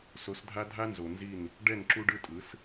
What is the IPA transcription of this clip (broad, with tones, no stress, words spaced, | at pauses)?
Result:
so˨˦sdʱa˦dʱa˦nzo˨ nzi˦˨n | ɖɛ˦˨nǁu˦ɖɯ˦tʼɯ˨˦s